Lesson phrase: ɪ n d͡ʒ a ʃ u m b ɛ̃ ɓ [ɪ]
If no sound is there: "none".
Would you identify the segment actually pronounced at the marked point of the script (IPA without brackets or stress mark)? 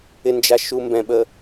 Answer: ə